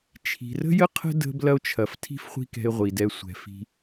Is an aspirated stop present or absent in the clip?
present